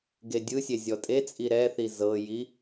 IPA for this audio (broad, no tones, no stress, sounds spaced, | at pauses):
ɡ e dʲ ɯ sʲ e zʲ ɔ tʼ e t͡sʼ i ɾ ɛ θ i z ɤ j i